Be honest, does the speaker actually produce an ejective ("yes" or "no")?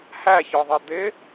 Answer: no